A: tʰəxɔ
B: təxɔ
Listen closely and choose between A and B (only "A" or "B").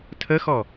A